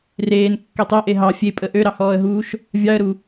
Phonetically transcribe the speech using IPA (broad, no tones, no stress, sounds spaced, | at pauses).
r eː n kː ø tˤ e ʔ e ɦ ɑ fʲ e pʼ ə ʔ ø ɾ ɑ h ɔː ə̯ ɦ uː ʃ | vʲ ɑ ə̯ ɾ u